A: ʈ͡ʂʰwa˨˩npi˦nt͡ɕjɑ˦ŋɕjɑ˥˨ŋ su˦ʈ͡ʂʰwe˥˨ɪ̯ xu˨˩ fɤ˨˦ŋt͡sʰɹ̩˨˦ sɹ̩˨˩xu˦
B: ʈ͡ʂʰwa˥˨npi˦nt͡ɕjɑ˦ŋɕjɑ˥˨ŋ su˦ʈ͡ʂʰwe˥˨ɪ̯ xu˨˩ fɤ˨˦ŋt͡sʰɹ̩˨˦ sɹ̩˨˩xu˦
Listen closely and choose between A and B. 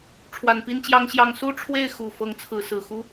A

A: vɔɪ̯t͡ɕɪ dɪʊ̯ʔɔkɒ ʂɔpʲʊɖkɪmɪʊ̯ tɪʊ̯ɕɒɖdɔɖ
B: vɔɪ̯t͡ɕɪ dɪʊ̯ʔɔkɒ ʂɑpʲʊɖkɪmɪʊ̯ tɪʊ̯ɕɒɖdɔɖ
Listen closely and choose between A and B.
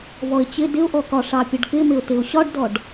B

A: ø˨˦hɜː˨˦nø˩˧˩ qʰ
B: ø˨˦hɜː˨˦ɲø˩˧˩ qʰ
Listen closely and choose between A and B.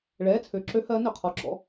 A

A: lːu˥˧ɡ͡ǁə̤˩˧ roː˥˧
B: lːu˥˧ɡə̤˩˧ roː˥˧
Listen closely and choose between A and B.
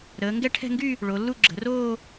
A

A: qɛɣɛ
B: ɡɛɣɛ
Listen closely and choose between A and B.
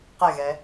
A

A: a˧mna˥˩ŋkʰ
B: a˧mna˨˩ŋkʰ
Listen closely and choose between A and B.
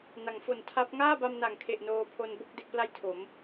B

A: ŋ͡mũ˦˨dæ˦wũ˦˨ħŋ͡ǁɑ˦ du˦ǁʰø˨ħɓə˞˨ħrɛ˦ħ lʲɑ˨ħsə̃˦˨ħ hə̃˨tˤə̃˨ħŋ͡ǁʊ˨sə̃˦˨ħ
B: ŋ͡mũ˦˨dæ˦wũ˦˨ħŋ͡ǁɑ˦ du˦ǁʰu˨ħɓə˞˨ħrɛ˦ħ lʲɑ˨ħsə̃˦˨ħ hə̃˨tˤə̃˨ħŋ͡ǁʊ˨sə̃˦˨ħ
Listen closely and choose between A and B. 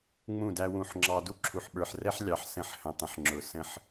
B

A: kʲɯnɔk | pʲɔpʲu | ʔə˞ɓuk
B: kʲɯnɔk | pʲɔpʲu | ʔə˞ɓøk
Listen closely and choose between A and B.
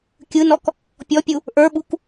A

